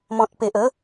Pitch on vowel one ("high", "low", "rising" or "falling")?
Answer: low